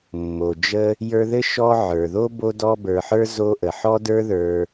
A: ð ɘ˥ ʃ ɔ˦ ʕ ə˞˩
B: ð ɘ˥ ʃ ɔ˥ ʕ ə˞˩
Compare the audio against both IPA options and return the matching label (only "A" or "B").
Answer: A